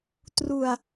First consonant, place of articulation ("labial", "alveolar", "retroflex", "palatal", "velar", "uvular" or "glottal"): alveolar